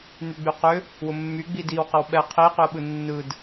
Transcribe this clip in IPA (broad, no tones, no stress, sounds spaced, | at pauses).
n̪ y ɡ͡b y q ʏ | w ʊ mː y ɡ͡b i d i w q ə w ɓ ɛ qʰ i q y ə̯ ɓ ɯ nː ɯ d